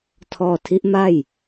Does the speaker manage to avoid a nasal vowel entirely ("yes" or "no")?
yes